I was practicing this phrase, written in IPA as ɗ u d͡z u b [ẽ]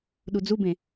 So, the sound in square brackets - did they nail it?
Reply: yes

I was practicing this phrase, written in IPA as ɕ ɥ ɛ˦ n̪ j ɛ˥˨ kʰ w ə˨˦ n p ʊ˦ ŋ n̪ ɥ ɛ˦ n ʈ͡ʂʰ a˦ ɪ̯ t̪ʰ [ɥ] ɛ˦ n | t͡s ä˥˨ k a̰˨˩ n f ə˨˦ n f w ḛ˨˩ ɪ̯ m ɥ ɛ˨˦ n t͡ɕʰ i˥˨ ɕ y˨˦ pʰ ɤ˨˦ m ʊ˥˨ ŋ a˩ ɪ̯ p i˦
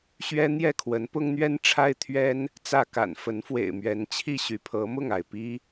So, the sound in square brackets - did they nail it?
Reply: yes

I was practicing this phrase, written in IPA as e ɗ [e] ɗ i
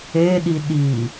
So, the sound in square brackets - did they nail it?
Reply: no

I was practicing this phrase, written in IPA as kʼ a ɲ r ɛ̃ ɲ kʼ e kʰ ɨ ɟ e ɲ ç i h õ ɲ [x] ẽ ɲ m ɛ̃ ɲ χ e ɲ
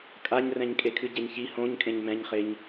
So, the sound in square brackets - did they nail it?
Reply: no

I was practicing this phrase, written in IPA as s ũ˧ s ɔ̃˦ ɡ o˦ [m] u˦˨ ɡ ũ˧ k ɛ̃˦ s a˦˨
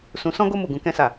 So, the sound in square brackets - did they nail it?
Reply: yes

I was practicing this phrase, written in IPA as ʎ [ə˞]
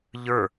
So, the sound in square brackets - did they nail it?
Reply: yes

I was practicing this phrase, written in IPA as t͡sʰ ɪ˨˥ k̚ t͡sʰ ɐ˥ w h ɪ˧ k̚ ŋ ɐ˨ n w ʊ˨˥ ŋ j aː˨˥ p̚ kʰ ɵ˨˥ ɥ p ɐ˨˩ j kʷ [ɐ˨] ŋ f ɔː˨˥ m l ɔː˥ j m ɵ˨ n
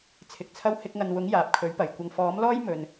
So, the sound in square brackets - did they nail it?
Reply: yes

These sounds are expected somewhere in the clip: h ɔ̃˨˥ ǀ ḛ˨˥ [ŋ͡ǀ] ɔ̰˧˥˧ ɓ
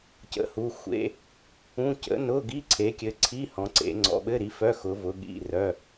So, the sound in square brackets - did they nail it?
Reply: yes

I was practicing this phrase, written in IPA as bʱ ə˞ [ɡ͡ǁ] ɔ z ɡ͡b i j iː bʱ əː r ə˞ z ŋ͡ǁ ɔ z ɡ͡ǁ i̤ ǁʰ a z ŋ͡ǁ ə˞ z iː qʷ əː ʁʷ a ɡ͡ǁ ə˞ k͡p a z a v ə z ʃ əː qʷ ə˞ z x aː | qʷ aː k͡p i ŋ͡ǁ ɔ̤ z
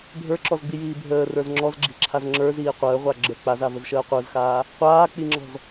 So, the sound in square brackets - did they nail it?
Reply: no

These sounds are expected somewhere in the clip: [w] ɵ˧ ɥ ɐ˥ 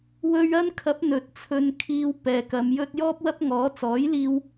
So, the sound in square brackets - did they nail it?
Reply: yes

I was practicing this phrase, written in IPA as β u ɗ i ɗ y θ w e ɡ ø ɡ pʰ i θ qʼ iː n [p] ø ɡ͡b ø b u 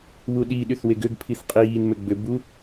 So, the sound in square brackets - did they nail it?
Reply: no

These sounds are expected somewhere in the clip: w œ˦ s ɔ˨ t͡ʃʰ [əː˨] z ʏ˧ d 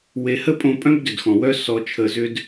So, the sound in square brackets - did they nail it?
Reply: no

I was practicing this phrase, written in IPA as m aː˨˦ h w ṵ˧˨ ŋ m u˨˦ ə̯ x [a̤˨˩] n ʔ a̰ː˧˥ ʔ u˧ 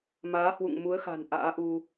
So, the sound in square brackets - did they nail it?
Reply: yes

